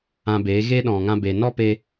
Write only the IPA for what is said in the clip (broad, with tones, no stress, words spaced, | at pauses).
ã˧beː˨˦ ɣe˦ɗɔ̃˨ŋã˧be˨ nɔ˦pe˧